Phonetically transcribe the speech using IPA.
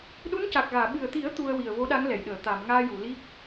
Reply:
ɗu˧˥nca˨˩k̚ɣaː˨˩˨ ɓɨ˨˩ə̯t̪i˨˩˦ə̯ t̪u˧ə̯wi˨˩ə̯ vo˧˥ɗa˧˥ŋ lɛ˨˩˨jɗəː˨˩˨ t̪a˨˩˨m ŋaː˧ju˨˩˨li˦˥k̚

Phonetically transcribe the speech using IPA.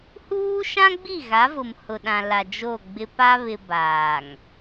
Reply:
huː˦ʃã˦ɡ͡bi˦˨ ɣa˨˦vʊ˨mhʊ˨ɗã˨ la˨ d͡ʒo˦˨ɡ͡bɪ˦ pa˦βɪ˨ baː˨ŋ

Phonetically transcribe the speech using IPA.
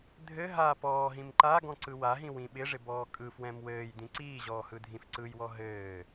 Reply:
dʱɘ ɦa pɔːɦĩm ǃaɡɔ̃ ǀɯwaɦĩ wĩɓɪʐɪ bɔːkʼɯfwɛ̃m wɘːj dĩǀiːʑɔː hɯdʱĩfǀɯjwɔ ɦɘː

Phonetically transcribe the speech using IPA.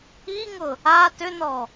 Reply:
iŋʊ | a tʏnɔ

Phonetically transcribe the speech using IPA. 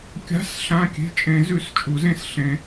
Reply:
kʲa̤˧˥˧s ɬã˧˥˧kʲe̤˧˥˧ t͡ʃʼẽ˨˩˦zʉ˨˩˦s t͡ʃʼu˨˩˦zẽ˧˥˧s ɬẽ˨˩˦

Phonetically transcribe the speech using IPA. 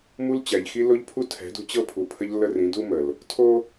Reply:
mu˦l t͡ɕæ˨ʎxi˦ lo˦ʎpʰu˦tʰɛ̤˨˦ dṳ˦ t͡ɕɤ˦ pʰu˨pʰə˦ʎ lːə˦rĩ˨˦du˦ mə˨l | tʰo˦

